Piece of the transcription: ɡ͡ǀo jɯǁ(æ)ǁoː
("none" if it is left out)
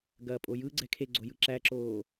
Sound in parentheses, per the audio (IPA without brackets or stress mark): æ